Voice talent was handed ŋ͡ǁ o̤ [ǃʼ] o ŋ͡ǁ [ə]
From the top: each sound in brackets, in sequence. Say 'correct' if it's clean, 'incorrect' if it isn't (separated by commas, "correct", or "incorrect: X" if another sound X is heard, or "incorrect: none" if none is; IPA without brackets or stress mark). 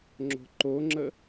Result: incorrect: ǃ, correct